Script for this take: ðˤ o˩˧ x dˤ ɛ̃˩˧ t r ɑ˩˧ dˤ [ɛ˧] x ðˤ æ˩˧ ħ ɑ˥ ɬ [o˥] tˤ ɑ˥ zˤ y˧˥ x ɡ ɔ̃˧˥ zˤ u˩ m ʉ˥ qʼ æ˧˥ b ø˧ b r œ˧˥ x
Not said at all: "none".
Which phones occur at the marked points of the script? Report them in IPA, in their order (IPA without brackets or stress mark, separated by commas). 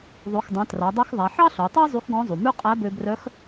ɛ˧, o˩˧